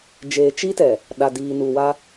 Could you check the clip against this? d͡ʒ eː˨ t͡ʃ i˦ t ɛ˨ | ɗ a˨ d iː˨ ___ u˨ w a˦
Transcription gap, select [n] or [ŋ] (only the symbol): n